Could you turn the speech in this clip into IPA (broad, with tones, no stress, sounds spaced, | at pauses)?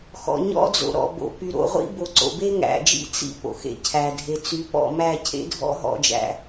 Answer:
x ɔ̰˨ ɲ ɔ̰˦ d͡z o̰˨ ɾ ɔ̰˨ b o̰˨ p y˨ ɾ o̰˨ ʁʷ ḭ˦ b o˨ ǀ o̰˨ b e˦ ŋ æ̰˨ d͡ʒ ḭ˦ t͡s ḭ˦ p o̰˨ x ḛ˦ cʰ æ˨ dʱ e˨ t͡s y˨˦ p ɔ̰˦˨ m æ˦˨ cʰ ḛ˦ dʱ ɔ̰˦ ɦ ɔ̰˦ d͡ʒ æ̰˦